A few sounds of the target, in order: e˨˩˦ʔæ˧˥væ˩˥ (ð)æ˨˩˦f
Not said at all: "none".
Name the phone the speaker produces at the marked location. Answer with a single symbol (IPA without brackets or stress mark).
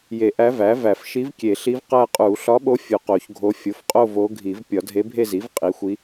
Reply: v